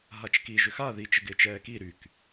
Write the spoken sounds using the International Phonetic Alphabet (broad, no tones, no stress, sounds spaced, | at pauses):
ɦ a t͡ʃ k i ʒ ʏ x a ð i t͡ʃ ɪ ɡ ɪː t͡ʃ ɛː k i ɾ y k